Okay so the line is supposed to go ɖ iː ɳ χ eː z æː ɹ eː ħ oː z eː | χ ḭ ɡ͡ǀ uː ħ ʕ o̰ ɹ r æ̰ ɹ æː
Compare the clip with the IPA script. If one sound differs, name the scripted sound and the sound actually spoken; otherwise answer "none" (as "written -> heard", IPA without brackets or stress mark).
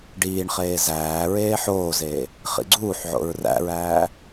none